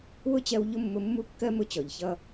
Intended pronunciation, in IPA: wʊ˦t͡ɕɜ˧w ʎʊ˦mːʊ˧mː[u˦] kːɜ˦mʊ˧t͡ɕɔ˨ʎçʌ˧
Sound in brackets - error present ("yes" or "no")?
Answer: no